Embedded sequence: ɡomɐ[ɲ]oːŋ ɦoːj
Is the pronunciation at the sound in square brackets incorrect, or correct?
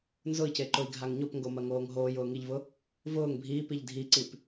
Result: incorrect: ŋ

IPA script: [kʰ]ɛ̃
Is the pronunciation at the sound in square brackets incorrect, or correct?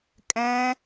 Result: incorrect: kʼ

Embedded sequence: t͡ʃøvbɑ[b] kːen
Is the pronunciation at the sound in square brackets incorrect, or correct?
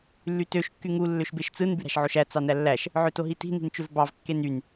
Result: incorrect: v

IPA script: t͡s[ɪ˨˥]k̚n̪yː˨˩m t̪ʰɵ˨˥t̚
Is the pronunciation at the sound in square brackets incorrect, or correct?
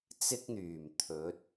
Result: incorrect: ɪ˥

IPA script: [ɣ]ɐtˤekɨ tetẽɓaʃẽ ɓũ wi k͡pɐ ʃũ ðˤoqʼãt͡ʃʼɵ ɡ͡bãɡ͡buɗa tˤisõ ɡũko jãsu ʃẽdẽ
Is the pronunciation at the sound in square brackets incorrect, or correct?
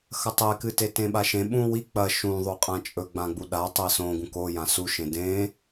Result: incorrect: x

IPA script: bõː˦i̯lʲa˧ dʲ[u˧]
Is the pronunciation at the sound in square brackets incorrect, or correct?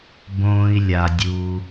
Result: correct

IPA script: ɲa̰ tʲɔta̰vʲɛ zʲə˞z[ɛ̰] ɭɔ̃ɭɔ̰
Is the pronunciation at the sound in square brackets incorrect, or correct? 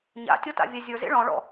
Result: incorrect: ḛ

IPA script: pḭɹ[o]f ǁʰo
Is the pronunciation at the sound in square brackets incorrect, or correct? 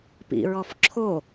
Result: incorrect: ɔ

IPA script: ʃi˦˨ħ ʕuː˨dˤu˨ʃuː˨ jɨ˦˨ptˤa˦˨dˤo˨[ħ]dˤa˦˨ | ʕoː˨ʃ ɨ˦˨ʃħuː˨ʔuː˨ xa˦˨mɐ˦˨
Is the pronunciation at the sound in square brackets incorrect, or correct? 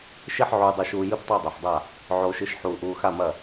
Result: correct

